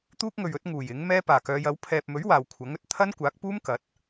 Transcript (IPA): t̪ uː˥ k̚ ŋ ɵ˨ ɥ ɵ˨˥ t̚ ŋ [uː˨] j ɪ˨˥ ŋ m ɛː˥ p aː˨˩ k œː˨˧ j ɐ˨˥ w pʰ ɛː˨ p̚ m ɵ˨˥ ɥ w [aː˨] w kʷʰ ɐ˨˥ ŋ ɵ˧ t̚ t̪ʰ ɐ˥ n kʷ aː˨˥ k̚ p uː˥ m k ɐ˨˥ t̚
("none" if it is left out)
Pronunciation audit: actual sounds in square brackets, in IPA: uː˨˩, aː˨

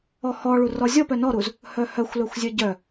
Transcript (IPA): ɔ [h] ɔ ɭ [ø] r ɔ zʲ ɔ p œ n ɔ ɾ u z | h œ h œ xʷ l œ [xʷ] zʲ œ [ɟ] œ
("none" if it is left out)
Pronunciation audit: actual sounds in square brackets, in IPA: h, u, xʷ, ɟ

